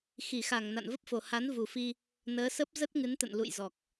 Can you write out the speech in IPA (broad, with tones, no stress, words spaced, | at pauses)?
xi˧˩xa˧˩ŋ na̰˧˨nvə˦˥p̚fo˨˩ ha˨˦nvu˨˩fi˧ | nəː˨˦sə˦˥p̚ zə˦˥t̚ŋɨ˨˦nt̪ə̰˧˨n lṵ˧˨jzɔ˨˩k̚